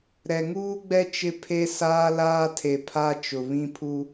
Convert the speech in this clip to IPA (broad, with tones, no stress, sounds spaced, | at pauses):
ɾ ɛ˨ ŋ uː˦ ɡ͡b ɛ˦ t͡ʃ ɪ˦ pʰ e˦ s aː˦ l aː˦ tʰ e˨ pʰ a˦ t͡ʃ ʊ˨ β ĩ˦ pʰ u˦